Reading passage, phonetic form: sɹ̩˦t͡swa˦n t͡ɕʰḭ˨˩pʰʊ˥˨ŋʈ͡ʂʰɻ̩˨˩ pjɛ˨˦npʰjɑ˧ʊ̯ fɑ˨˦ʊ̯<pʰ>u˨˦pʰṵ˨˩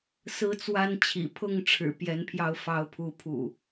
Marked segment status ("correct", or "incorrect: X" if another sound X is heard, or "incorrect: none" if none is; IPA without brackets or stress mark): correct